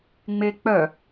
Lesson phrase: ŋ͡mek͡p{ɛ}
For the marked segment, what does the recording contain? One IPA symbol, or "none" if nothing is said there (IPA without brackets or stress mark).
œ